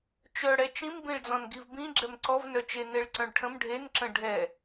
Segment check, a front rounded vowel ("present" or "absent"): present